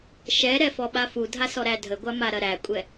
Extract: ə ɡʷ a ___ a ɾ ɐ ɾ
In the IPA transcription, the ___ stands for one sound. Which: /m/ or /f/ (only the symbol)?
m